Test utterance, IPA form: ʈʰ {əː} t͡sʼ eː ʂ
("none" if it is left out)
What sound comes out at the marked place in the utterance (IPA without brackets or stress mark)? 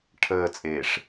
əː